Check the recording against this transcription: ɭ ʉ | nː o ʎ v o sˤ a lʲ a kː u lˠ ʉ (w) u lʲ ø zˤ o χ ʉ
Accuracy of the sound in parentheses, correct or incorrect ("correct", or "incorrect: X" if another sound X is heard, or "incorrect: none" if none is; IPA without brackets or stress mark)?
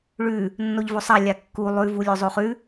incorrect: v